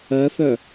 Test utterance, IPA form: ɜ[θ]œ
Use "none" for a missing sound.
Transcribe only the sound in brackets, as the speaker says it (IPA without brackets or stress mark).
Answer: θ